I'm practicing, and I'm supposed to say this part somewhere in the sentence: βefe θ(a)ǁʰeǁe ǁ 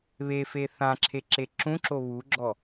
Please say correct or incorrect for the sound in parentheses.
incorrect